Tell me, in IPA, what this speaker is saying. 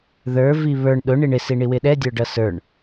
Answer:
ð ə˞ v i β ə˞ ɳ ɗ ʊ ɳ i ɳ ɪ s i ɳ i w ɪ ɗ ɛ dʲ ə˞ ɖ ʌ s ə˞ ɳ

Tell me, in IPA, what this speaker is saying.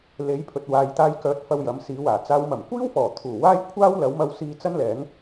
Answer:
l e˨˥ j pʰ ɵ˨ t̚ w aː˨ j t̪ aː˧ j k œː˨˥ t̚ f ɐ˧ w j ɐ˨˥ m s iː˨˥ w aː˨˩ t͡s aː˨˧ w m ɐ˨˩ m kʷ iː˥ w f ɔː˨˩ t̪ʰ uː˨˩ w aː˥ j kʷʰ aː˥ w l ɐ˨˥ w m ɐ˧ w s iː˧ t͡s ɐ˥ n l ɛː˨˥ ŋ

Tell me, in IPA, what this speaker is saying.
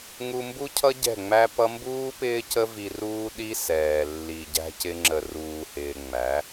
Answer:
ŋ u˧ m b u˦ cʰ ʌ˦ ɟ ɛ̤˦˨ ŋ͡m æ˦ p ʌ˦ m b uː˦ p ɪː˦ c ə˦ v i˧ r uː˧ ɗ i˦ s ɛː˨ lː i˨ ɟ æ̤˧ c ɪ˧ ŋ͡ǁ ə˨ r uː˨ h ɪː˨ ŋ͡m æ˨˦

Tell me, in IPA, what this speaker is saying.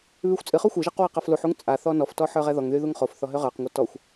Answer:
β y xʷ t͡sʼ ɨ χ u xʷ ɨ ʒ ɛ q w a q a f l u ħ u ŋ t͡sʼ a θ ɔ n ɔ f t ɔ ħ ə˞ ʁ ɛ ð ɔ ŋ ð y ð u ŋ χ o f θ ɔ ɦ ø ʁ ə˞ q ŋʷ ɛ t ɔ xʷ

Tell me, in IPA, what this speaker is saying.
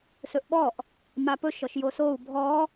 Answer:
s ɵ ʔ ɓ ɔ ʔ | m a p ɵ ʃ ɔ ʃ j o s o u̯ bʱ ɔ

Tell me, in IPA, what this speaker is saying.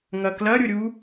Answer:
ŋ ɐ k l ɐ ɾʲ ʊ ɾʲ u

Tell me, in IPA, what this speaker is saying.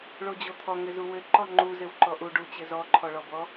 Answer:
ɭ o d͡ʑ o t̪ʰ ɔ ŋ ɘ z u w ɘ ǃ ɔ ŋ͡ǃ u z ɘ w ǃ ɔ ʔ u ɖ u t͡ɕ ɘ z ɔ ǃʰ ɔ ɭ ɔ b ɔ

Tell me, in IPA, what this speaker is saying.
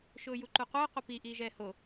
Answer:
ʃ ʊː j u ǃ u qʷ ɘː qʷ ə p i ʔ iː ʒ ɛː h o

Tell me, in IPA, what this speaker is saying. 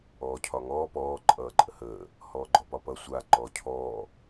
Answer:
ɔː cʰ ɒ ŋ ɔː p ɔː ǃʼ ʌː ǃʼ ə h əː | h ɔː ɡ͡ǃ ɔ p ɒ p ʌ sʷ a ǃ ɔː cʰ ɔː

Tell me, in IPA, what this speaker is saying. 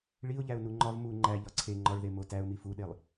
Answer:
ɭ i ʊ̯ ʎ æ ʊ̯ n u ŋ͡ǃ ɒ v m u ŋ͡ǃ æ ʎ ɒ ǀʰ e ŋ͡ǃ ɒ ɭ ð e m o t æ ʊ̯ m i f u ɗ e lˠ

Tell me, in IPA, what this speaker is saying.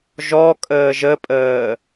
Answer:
ʒ ɔ kʼ əː ʒ ə pʼ əː

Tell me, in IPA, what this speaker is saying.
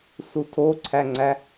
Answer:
s u tʰ o ǀʰ æ ŋ͡ǀ æ

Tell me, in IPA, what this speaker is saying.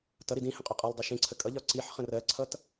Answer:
t ʌ ɾ i d ĩ h ə̃ qʼ ʊ qʼ ɜ lˠ dˤ ɜ ʃ ĩ ǀʰ ə kʼ ʌ ʎ ɒ ǀ i ħ χ ə̃ r ɜ ǀʰ ʌ t

